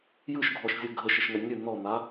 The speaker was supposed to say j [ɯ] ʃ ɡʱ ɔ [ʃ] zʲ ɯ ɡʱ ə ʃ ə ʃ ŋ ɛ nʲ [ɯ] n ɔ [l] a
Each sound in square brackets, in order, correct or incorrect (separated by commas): correct, correct, correct, incorrect